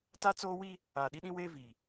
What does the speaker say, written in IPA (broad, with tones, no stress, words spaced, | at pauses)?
ta˦ t͡soː˦ wi˦ | aː˨ɗi˦ɗĩ˦weː˦ vi˨